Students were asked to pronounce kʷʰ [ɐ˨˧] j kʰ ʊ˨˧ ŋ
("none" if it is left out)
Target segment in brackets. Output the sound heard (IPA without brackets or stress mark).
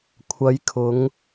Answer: ɐ˨˧